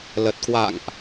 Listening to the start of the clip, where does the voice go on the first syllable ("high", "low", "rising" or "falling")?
low